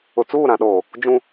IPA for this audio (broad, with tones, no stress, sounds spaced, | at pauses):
ʊ˨ t͡s uː˦˨ ɾ ã˨ ɗ oː˨ | d͡ʒ ũ˦